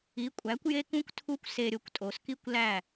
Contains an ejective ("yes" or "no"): yes